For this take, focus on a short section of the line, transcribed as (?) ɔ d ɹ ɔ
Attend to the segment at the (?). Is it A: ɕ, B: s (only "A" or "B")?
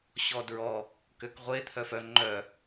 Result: A